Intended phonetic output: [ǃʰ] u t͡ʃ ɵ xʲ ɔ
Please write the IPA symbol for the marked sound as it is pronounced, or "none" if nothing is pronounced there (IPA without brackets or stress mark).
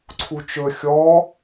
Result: ǀʰ